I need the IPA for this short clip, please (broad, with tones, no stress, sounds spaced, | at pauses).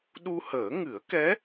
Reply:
ɗ u˧ h əː˨˩˦ ŋ ɨ˨˩˦ ə̯ k ɛ˧˥